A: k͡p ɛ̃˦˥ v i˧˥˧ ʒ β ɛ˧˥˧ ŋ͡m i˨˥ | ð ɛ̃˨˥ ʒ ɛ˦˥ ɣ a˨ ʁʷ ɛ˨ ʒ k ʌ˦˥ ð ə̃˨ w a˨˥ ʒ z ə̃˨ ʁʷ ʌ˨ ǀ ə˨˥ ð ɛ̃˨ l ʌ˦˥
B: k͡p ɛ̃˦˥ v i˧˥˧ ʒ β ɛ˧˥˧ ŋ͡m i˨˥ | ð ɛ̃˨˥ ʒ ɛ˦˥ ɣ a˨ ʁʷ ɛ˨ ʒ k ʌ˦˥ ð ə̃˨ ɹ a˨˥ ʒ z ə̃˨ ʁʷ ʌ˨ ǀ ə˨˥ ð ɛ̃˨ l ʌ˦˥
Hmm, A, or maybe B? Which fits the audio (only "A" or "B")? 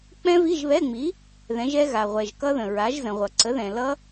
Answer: B